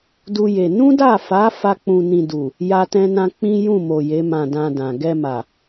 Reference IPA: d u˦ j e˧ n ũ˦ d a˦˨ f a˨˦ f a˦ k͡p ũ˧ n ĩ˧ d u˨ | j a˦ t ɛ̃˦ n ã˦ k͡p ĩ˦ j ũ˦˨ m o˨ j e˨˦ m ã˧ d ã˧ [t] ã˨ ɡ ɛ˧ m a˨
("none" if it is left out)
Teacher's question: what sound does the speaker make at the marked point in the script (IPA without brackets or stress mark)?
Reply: d